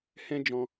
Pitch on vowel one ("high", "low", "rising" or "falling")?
high